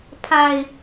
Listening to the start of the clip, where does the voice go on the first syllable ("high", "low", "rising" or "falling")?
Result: low